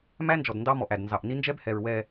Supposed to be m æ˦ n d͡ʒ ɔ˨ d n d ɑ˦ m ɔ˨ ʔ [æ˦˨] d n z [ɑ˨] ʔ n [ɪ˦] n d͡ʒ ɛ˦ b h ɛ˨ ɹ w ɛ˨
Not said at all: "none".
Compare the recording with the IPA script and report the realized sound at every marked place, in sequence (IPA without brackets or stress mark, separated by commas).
æ˨, ɑ˨, i˦